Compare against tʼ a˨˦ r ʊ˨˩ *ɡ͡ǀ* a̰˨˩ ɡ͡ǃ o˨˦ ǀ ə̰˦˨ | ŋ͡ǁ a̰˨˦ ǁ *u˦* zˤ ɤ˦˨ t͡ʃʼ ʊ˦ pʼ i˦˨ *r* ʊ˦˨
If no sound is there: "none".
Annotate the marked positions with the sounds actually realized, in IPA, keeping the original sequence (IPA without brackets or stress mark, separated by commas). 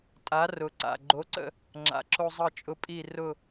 ǀ, o˦, r